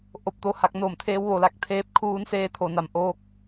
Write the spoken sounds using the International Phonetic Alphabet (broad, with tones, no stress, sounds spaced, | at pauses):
ʔ o˧ p̚ t̪ o˧ h a˧ k̚ n oː˧˩ m t̪ʰ eː˧˥ w ʋ o˩˧ l a˧ k̚ t̪ʰ eː˧˥ p̚ kʰ uː˧˥ n s eː˧˥ t̪ʰ o˩ n a˩ m ʔ oː˧ k̚